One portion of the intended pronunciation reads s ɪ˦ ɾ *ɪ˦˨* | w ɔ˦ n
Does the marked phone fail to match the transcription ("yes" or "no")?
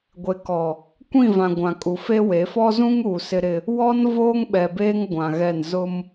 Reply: yes